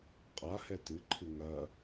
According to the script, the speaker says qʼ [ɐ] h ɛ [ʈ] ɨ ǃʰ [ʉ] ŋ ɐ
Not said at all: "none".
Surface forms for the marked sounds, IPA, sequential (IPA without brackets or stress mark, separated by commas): a, t, ɨ